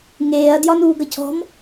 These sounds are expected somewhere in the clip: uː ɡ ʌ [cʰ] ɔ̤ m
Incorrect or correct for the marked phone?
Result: correct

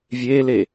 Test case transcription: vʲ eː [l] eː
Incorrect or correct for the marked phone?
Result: correct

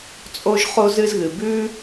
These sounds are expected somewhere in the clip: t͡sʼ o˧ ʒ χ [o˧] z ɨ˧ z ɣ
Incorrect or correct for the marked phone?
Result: correct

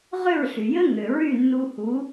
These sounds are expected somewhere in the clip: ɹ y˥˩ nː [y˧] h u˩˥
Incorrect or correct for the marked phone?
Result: incorrect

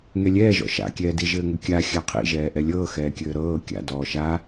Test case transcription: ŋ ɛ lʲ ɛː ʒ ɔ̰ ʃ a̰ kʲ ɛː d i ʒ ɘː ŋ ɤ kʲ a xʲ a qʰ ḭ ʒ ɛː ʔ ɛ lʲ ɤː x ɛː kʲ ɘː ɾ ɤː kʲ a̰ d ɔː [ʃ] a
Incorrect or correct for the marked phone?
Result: correct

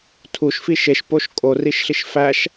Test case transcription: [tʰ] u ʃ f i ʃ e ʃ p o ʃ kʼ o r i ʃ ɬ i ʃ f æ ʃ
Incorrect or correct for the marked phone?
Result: correct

